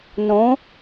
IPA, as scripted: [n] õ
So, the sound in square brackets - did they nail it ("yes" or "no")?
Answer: yes